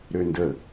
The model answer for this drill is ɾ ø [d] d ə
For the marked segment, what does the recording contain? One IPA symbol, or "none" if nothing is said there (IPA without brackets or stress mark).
n